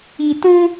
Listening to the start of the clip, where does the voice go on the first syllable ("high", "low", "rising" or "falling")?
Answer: low